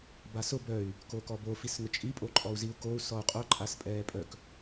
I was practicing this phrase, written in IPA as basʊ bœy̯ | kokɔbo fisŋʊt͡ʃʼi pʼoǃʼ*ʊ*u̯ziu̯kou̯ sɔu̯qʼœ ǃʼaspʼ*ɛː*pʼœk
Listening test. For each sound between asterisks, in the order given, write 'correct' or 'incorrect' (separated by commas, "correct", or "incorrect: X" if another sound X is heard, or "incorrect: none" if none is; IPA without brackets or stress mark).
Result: incorrect: ɔ, correct